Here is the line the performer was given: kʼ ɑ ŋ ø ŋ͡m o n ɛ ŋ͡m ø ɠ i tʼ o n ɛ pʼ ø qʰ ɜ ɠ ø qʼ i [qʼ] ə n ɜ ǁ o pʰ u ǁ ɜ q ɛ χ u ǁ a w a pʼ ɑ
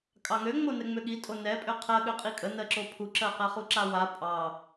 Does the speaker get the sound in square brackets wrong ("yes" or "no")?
yes